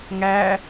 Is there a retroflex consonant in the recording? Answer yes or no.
no